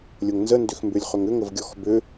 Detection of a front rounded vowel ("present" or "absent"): present